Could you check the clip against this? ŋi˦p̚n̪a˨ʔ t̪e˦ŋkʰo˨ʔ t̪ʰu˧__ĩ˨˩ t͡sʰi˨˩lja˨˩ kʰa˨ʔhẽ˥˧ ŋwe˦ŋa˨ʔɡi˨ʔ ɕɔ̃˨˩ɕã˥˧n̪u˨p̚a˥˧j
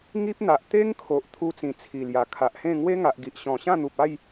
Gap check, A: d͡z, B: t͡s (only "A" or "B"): B